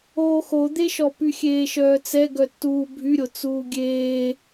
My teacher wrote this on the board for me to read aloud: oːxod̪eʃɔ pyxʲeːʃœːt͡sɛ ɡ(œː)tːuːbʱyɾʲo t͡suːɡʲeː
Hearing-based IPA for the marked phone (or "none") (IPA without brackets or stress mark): œ